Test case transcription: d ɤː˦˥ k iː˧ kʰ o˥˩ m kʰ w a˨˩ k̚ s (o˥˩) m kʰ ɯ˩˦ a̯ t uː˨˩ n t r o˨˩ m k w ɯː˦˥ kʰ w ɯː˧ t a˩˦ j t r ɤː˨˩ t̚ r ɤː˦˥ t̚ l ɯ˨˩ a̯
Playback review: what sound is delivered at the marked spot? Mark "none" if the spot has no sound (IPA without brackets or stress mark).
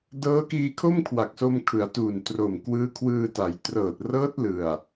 o˧